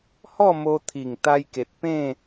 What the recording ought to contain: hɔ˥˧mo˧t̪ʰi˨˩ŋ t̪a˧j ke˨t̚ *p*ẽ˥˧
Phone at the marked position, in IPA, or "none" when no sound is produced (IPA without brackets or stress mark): p